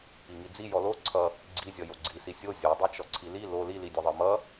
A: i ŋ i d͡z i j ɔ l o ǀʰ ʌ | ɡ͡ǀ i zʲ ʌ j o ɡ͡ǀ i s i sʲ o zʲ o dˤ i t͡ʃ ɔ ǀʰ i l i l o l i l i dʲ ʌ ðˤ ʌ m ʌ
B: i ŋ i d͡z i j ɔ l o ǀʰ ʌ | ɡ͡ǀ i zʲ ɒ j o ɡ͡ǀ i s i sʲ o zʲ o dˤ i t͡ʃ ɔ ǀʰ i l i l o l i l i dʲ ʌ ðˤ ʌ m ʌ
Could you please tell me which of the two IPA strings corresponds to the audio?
A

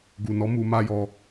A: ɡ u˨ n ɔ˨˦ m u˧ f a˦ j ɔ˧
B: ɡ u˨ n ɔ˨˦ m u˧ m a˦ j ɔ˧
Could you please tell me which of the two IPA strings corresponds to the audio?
B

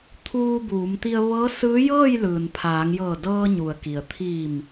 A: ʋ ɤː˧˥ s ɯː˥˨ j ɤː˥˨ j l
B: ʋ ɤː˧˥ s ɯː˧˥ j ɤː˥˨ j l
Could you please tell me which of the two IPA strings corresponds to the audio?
B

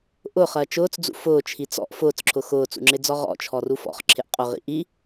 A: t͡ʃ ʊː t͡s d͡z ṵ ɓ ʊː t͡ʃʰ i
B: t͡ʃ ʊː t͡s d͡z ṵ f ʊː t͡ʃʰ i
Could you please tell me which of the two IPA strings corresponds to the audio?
B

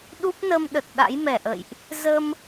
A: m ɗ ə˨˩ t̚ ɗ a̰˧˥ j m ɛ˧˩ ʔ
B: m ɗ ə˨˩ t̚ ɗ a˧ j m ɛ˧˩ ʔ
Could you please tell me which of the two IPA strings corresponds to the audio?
A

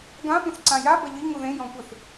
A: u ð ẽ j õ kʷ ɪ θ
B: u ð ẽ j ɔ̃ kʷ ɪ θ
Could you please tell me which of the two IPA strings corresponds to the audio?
B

